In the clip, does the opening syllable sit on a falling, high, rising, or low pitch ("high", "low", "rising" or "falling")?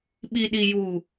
low